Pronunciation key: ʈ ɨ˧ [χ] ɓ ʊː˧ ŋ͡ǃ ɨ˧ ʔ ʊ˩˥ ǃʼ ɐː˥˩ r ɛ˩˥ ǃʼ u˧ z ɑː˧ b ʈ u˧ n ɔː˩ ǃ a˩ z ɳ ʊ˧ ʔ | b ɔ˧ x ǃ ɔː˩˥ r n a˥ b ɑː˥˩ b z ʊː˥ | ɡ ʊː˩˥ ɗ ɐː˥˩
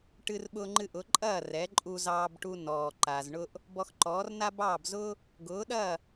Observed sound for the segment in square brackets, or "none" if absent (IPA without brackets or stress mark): r